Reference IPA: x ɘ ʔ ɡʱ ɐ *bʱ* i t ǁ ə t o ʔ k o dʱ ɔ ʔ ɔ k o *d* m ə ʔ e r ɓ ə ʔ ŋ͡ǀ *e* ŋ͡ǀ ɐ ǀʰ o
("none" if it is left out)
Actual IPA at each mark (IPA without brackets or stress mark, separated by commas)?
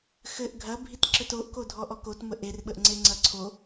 bʱ, t, e